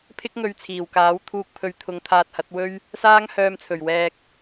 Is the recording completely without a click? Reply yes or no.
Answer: yes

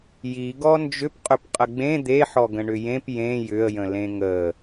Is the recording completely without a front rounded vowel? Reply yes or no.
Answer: no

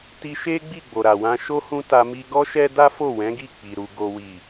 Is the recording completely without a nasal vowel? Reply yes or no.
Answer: no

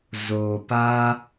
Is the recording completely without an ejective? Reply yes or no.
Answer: yes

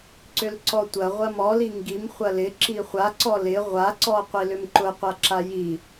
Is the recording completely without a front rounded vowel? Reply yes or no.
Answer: no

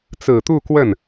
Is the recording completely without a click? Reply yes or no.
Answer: yes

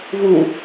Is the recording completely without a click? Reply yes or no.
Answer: yes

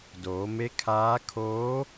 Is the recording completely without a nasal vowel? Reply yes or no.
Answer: yes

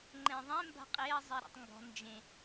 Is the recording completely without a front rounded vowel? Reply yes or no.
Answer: yes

